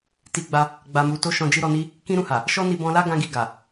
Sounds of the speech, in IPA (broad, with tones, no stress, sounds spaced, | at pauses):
t i˧ ɡ͡b a˧ | ɡ͡b a˨ m u˨ t o˧ ʃ ɔ̃˧ d͡ʒ i˦ ɾ ɔ˧ n i˦ | k ĩ˦ ɾ ũ˦˨ h a˨ | ʃ ɔ˦ n i˧ b ɔ̃˧ l a˦ ɡ ã˧ ɡ i˨ ɡ a˨